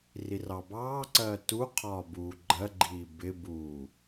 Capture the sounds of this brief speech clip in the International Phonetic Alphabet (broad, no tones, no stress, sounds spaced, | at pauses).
r i r ɑ b ɑː ǀ ɜː t u qʰ ɒː b uː ɡ͡ǃ ɜ ɡ͡ǃ iː b ɪ b uː